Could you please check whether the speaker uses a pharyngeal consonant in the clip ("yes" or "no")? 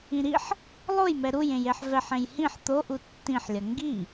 yes